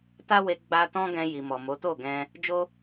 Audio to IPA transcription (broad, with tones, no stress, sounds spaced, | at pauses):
t a˦ w e˧ ɡ͡b a˧ t ɔ̃˦ ɡ ɛ̃˧ j i˨ m ɔ˨ m o˨˦ t o˦˨ ɡ ɛ̃˧ | d͡ʒ o˦